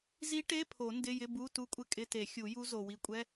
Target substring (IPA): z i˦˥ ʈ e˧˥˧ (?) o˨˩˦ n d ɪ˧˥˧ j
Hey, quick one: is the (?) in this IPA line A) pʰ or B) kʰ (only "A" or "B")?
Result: A